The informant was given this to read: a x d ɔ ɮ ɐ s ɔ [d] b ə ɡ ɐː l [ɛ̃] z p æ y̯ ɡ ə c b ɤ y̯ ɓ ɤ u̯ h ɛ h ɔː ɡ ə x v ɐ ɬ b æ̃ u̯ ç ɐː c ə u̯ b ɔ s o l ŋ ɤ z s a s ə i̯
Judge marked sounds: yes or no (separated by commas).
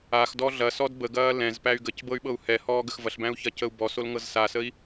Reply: yes, yes